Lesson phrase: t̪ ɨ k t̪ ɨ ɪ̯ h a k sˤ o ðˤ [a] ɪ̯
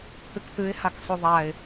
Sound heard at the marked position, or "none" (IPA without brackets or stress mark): a